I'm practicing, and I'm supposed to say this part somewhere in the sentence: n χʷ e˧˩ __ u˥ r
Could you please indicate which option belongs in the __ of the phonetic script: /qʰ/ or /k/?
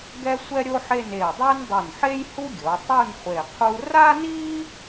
qʰ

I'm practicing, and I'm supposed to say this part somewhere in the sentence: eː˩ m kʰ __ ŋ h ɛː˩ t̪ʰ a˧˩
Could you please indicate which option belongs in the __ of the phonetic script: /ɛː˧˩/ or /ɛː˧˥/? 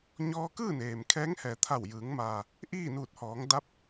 ɛː˧˥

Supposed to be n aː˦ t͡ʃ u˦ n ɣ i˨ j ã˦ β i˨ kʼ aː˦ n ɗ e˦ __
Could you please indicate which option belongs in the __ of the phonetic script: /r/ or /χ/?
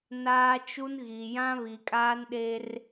r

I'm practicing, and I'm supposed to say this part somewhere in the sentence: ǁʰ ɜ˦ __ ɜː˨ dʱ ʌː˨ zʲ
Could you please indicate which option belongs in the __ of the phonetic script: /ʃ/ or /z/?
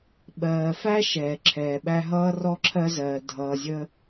z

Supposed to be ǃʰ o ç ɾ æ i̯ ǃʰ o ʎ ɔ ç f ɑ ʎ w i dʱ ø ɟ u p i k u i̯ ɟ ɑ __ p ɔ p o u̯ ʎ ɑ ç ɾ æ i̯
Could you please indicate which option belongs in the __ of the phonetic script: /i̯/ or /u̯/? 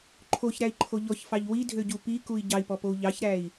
i̯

